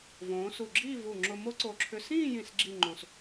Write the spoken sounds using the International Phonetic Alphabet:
v õː˩˧ s u˧˩ ɡ͡ǁ iː˥˧ v u˧˩ ŋ͡ǁ ʊ˧ m o˥ ǀ o˧˩ ǁʰ ʏ˧ s ĩː˥˧ j ĩ˧˩ s ɡ͡ǁ i˥˧ ŋ͡ǃ õ˧ s

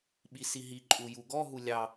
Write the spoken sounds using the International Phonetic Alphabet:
ɓ i s i ɦ i ǃʼ u j u ɡ ɔ ɦ u lʲ ɑ

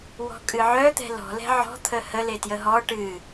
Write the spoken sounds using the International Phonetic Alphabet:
w ɔ̤ kʼ ɨ ʕ œ t̪ ɛ̤ l ɔ̤ l ɛ̤ ʕ ɔ̤ t̪ʰ ə h ə l e t j ə ɦ ɔ ʈ ɨ

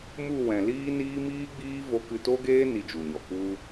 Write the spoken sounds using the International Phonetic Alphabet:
m u˦˨ w ɛ̃˨ l iː˦ n iː˦ m iː˦ ɡ͡b iː˦ v o˧ k ɨ˧ t o˦ ɡ eː˦ n i˧ d͡ʒ u˨ ɲ ɔ˨ k u˦

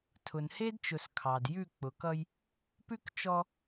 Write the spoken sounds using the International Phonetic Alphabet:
tʰ ʊ˨ n h e˦ d t͡ʃ ʊ˨ s kʰ ɑ˨ d j ʉ˦˨ k͡p ʊ˨ k ʌ˦ j | p ʉ˦ k t͡ʃ ɔ˦

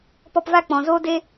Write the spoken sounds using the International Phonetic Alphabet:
p ɔ˧ p v a˦˨ k͡p ɔ̃˨ z oː˦ d e˦

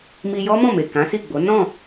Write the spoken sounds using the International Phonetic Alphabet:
m i˧ j ɔ˦ m ɔ̃˦˨ m e˨ k ã˨˦ s i˦˨ ɡ͡b o˨˦ n ɔ̃˦˨

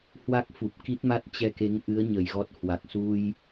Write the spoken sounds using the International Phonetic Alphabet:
h w a˦˥ k̚ f u˨˩ p̚ k i˦˥ t̚ m a˦˥ t̚ t͡ɕ ɛ˧ k e˨˦ ŋ ʔ ɨ˨˦ ə̯ ɲ ə˨˩ j ɣ ɔ˦˥ t̚ h w a˨˩ k̚ s u˧ j

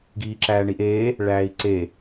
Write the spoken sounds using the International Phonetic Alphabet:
ɡ iː ǁ æː ɳ i ʔ eː | ɭ æː i̯ ǀ e

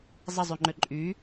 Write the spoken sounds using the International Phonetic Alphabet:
zˤ ə zˤ y ŋ͡ǃ ø ǃʼ y

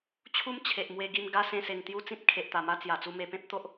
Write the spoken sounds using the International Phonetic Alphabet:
t͡ɕʰ u˦ m t͡ɕʰ e˨ ʔ m w e˧ ɡ i˧ m ɡ a˦ s ẽ˧ s e˨˩ ŋ t̪ j u˦ t͡s ĩ˦ t̚ kʰ e˨ ʔ t̪ a˨˩ m a˦ t͡s j a˨˩ t͡s u˧ m e˧ p ẽ˦ p̚ t̪ o˦ ʔ

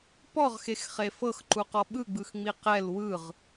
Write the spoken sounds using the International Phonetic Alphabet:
p ɔ ʁ x e x χ e f ɤ x ǃ u q ɔ ɓ ɯ ɡ͡b ɯ x ŋ͡m i q ɛ l w ɯ ʁ

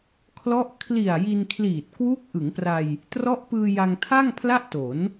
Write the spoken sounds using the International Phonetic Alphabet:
kʰ l ɔ˦˥ ʔ kʰ l i˨˩ a̯ j i˧ n kʰ l iː˨˩ t̚ k w uː˦˥ k̚ ʔ ɯ˩˦ ŋ p r a˧ j | t r ɔ˦˥ ʔ p ɯː˧ j a˧ ŋ tʰ a˥˩ ŋ pʰ l a˥˩ ʔ t o˩˦ n

